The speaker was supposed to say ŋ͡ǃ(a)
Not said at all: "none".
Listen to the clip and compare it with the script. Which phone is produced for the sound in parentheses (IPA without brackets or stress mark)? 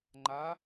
a